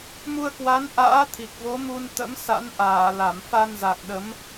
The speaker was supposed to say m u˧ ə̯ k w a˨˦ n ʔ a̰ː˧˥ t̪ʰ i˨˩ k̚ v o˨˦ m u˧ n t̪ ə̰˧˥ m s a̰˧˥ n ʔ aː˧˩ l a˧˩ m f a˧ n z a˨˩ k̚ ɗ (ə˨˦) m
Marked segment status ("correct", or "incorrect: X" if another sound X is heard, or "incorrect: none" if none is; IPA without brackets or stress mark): correct